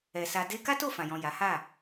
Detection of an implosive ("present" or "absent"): absent